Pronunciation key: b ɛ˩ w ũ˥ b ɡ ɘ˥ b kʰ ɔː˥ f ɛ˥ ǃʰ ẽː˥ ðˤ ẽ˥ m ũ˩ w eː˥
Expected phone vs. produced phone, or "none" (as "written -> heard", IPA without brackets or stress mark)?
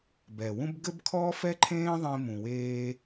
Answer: none